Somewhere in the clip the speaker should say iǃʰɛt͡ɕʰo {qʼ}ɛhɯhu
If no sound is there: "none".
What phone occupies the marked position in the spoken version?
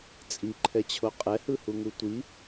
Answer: qʼ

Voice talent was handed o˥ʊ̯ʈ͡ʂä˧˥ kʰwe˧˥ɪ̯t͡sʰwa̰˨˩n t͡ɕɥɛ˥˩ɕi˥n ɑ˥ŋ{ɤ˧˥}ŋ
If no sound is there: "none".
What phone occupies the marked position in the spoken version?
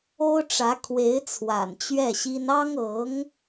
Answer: ɤ˧˥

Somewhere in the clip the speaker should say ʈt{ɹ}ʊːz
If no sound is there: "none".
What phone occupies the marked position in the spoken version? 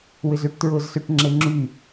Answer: ɹ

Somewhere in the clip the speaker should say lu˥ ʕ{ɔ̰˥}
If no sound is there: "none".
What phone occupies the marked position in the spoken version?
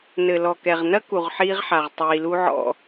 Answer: ɔ̰˥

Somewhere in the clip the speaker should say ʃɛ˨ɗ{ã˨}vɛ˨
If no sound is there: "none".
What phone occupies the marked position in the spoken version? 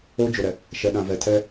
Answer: ã˨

